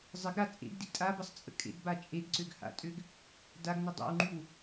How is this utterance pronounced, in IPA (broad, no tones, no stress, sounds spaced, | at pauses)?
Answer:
zˤ ɪ ɡ ɾ a t͡sʼ ḛ ɡ d ḭ tʼ a b ə sˤ t͡sʼ ə̰ kʼ ḛ ɡ b a t͡ʃʼ e ɡ ǀ ø ɡ h a̰ tʼ ø ɡ | d a ɡ n ʊ dˤ a̰ w ŋ͡ǃ y w